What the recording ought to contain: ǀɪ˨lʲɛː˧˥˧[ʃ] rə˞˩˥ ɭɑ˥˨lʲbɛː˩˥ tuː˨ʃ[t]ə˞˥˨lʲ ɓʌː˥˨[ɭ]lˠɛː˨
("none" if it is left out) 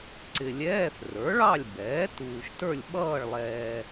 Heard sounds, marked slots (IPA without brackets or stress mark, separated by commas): θ, t, ɭ